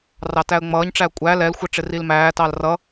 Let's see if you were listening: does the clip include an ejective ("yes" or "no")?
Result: yes